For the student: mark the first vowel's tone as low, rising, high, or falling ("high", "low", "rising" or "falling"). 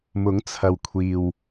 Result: rising